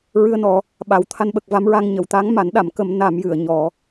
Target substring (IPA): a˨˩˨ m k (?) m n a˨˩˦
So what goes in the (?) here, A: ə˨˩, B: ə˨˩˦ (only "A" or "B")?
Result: B